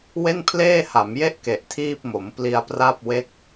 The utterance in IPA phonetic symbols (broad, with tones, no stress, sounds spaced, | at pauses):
w e˥˩ n pʰ l eː˥˩ h a˩˦ m j e˥˩ ʔ k e˨˩ ʔ tʰ iː˥˩ p̚ m o˩˦ m p l i˧ a̯ p r a˥˩ p̚ w e˥˩ k̚